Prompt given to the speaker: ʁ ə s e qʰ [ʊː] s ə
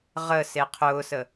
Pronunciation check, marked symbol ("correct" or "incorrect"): correct